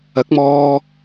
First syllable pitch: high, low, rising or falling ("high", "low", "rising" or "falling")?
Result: rising